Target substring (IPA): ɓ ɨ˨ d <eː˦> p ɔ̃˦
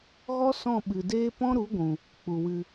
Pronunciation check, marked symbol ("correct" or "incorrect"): correct